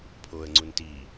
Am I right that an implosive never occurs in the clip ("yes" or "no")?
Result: yes